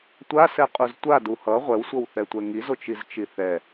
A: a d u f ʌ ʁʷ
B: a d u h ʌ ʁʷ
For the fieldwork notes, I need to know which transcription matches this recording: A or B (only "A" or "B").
B